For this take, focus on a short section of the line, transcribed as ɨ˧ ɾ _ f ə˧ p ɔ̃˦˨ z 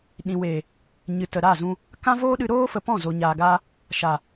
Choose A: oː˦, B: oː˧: A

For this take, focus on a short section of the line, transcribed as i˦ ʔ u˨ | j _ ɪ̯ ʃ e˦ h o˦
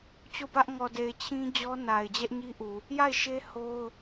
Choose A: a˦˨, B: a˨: A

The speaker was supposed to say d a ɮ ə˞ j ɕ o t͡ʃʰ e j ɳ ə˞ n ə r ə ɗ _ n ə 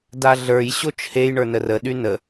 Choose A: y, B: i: A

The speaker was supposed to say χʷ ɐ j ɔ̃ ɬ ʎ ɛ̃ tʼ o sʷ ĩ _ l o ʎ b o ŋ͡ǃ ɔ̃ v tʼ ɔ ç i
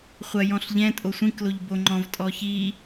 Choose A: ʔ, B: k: B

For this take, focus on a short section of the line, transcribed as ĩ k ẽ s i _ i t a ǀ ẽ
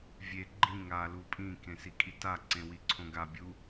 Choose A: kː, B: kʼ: B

